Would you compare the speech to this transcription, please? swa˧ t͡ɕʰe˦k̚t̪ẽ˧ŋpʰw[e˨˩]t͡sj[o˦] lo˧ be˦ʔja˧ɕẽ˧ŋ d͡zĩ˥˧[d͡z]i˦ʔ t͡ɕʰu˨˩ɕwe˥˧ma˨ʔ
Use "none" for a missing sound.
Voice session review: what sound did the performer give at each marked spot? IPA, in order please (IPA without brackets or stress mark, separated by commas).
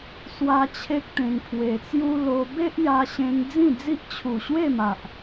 e˧, u˦, d͡z